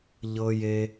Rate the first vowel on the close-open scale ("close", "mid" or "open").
mid